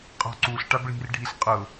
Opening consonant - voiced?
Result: no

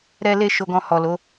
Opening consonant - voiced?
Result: yes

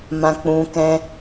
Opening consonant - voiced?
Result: yes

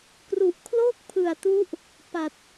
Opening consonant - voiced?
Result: no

